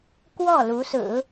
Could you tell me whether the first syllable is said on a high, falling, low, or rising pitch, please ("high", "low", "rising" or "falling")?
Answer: falling